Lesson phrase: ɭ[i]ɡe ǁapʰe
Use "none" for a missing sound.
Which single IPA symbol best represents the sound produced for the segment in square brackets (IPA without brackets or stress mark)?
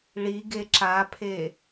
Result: i